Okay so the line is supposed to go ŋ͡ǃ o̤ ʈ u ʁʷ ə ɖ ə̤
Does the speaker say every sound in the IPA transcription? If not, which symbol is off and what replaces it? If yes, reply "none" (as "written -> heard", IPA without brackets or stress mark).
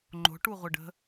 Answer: none